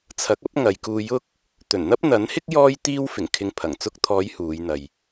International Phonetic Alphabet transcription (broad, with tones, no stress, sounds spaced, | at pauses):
t͡sʰ ɐ˨˥ k̚ ɐ˨˥ p̚ ŋ ɐ˨ j k uː˧ j ʊ˥ k̚ | t̪ ɵ˨˩ n n̪ ɐ˥ p̚ n̪ ɐ˨˥ n h ɪ˥ k̚ j ɔː˥ j t̪ iː˥ w f ɪ˨˩ ŋ kʰ ɪ˧ ŋ pʰ ɐ˨˩ ŋ t͡s ʊ˧ k̚ t̪ʰ ɔː˨˧ j h uː˨˧ j n̪ ɐ˨ j